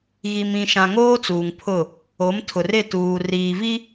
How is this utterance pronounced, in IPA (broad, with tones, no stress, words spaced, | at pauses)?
ɣi˨mĩ˨ʃã˨ ŋoː˦t͡suː˨ŋpʰʊ˦˨ | o˨˦m tʰʊ˨rɪ˦˨ tuː˨riː˨vi˦